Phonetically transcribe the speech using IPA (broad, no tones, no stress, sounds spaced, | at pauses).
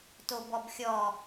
t o b ɔ b xʲ ɔ